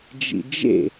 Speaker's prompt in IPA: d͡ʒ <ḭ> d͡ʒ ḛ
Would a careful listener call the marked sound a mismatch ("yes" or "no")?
no